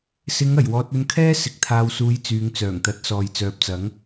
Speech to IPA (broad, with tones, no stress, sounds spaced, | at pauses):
s ɪ˨˧ ŋ ɐ˨˩ j w ɔː˨ t̚ ɵ˧ n kʰ ɛː˥ s ɪ˨˥ k̚ t̪ʰ aː˨ w s uː˨˧ j t͡s yː˨˧ ŋ t͡s œː˨˩ ŋ t̪ ɐ˨˥ t̚ s ɔː˨ j t͡s œː˨ p̚ t͡s ɐ˨˥ ŋ